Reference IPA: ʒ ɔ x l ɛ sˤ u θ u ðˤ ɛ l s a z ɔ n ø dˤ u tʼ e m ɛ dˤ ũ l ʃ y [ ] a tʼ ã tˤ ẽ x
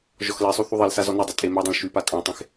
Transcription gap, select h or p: p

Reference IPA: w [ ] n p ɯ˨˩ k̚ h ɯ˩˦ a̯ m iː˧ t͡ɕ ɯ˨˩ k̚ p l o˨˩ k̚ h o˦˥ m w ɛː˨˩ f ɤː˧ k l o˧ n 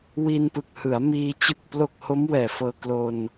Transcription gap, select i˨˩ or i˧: i˧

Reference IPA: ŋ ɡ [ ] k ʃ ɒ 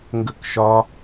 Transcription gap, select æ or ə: ə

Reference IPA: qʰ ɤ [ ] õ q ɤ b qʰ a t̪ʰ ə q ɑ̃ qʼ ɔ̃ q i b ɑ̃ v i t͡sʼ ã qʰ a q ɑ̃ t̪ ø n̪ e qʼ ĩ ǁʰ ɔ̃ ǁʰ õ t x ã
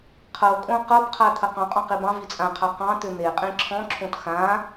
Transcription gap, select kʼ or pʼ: kʼ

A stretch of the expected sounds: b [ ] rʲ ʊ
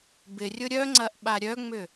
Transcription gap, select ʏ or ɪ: ɪ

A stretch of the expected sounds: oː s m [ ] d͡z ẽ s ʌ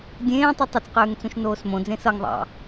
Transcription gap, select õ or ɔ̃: õ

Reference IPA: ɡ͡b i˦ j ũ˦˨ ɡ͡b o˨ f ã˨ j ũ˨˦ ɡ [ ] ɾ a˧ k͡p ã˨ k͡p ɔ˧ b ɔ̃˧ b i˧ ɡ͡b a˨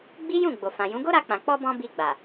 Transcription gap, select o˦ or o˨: o˦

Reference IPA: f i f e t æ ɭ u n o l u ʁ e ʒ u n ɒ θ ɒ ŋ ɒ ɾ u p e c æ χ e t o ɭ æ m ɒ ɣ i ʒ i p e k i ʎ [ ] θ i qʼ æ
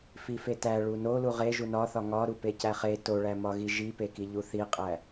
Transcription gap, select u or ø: u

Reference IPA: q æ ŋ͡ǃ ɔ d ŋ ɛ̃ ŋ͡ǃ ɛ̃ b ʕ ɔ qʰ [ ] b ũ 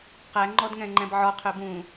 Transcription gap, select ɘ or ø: ø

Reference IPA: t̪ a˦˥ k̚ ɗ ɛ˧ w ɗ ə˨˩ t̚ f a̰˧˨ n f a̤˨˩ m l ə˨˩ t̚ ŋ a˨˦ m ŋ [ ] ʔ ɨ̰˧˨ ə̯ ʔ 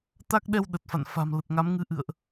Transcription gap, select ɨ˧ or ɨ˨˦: ɨ˨˦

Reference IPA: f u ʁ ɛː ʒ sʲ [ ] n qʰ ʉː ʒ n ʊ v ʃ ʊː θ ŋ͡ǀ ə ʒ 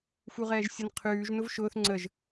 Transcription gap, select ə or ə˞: ə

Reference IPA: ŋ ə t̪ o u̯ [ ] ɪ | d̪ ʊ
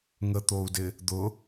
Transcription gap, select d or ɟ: d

